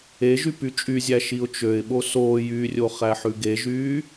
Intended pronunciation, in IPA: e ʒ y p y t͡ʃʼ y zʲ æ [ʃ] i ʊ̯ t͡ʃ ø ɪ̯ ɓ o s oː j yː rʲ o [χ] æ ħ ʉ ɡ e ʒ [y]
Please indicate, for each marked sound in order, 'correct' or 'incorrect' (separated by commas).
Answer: correct, correct, incorrect